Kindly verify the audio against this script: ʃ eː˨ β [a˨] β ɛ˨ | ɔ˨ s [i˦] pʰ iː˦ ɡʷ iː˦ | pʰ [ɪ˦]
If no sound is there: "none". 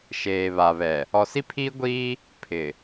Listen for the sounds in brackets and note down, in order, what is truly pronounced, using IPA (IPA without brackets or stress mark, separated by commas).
a˨, i˦, ɪ˨